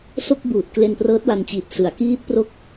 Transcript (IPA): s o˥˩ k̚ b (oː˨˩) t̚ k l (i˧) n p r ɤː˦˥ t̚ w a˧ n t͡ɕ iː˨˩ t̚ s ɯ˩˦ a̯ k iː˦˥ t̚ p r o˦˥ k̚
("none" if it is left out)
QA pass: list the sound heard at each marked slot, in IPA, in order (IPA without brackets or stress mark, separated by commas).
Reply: uː˨˩, e˧